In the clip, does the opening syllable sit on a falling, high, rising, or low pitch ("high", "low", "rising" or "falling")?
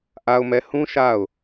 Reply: low